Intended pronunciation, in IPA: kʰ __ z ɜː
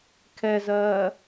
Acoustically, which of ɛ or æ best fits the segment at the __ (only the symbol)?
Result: ɛ